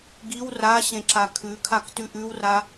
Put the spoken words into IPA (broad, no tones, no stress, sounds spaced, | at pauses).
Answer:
ɡ i w r a ɕ ẽ ǁ a kʰ ʉ kʰ a k t ʉ ʔ ʉ w r a